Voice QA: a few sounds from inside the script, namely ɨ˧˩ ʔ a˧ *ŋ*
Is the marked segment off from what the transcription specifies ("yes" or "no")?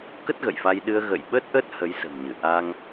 no